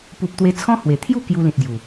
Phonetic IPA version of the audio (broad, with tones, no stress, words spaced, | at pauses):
pu˨p̚ t̪we˧t͡sʰɔ̃˦hwe˨˩ t̪ʰju˥˧ kju˧lĩ˨t̚ ɡju˨˩